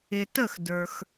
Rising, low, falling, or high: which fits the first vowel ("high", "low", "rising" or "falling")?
low